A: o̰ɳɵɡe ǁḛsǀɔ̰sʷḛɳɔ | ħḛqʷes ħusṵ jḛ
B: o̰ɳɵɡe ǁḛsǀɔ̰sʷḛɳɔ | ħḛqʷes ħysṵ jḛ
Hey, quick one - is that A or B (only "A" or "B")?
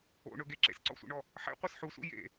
A